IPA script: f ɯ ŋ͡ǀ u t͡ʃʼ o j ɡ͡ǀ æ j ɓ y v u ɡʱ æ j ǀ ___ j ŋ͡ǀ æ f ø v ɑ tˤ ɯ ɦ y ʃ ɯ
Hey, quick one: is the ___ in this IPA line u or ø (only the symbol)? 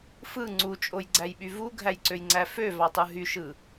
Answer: ø